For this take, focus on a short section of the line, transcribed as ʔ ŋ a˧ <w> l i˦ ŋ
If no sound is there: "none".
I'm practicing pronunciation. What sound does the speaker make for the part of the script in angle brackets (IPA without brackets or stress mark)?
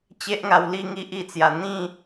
w